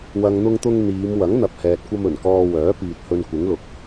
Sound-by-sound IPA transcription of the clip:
wɐ˨ŋn̪ʊ˧ŋt̪ʊ˧ŋ n̪iː˨˧m wɐ˨˥ŋn̪ɐ˨p̚ hɛː˨t̚kʷɐ˧m ɵ˨˩nkɔː˧wœː˨˥ piː˨t̚hɵ˧nkʷɪ˨˥ŋlʊ˨k̚

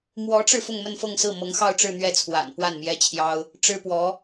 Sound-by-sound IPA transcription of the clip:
mwɔ˧˥ʈ͡ʂɻ̩˧ fʊ˥˧ŋmə˥˧nfɤ˥˧ŋsɹ̩˥˩ mɤ˧˥ŋxɑ˥˧ʊ̯ʈ͡ʂɻ̩˥˧ n̪ɥɛ˥˩t͡sʰwa̰˨˩n pwa˥˩nmjɛ˥t͡ɕʰjɑ˥ʊ̯ | ʈ͡ʂɻ̩˥pwɔ˧˥

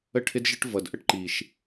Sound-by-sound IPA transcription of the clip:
ə˦ʈʰɪ˦dʒə˦ʈ vʌ˨d ʔə˦ʈǃi˨ʃ

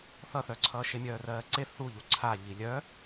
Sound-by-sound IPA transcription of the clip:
θʌθœǀʰʌː ʃemʲœːrɜːǀe θuʎu ǀʰaʎi lʲœ

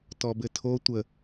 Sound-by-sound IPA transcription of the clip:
tɔbɘtʰo tʷə

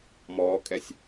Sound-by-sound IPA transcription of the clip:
mɔːkʼɛsʲ

